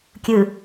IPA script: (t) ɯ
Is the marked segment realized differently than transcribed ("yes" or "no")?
yes